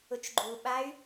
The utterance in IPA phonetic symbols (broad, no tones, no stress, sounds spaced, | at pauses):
ʊ t͡ʃ ɡ͡ǃ u ɓ a y̯